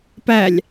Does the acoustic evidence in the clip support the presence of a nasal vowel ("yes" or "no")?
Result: no